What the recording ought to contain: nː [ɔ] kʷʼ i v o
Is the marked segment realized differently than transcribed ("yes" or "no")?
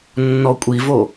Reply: no